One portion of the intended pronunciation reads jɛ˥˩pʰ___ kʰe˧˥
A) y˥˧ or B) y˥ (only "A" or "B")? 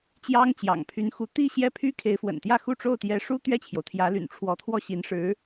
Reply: B